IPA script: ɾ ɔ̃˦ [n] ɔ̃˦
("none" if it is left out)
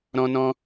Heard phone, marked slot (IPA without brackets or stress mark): n